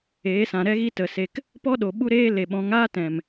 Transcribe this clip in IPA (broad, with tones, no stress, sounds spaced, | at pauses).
eː˨˦ s ã˨ ɾ ɛ˦ ɣ i˦ t ə˨ s e˧ k | p ɔ˦ ɗ o˨ ɓ u˦ ɾ eː˦ l e˨ ɓ ɔ̃˨˦ ŋ aː˦ t ɛ̃˨ m